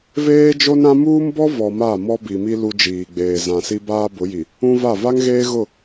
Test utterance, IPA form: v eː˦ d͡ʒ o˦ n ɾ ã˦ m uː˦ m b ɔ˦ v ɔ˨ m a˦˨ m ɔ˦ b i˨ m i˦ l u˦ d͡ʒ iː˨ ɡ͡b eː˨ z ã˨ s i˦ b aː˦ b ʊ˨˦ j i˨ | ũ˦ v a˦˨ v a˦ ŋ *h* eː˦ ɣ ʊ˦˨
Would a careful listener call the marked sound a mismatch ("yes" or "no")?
yes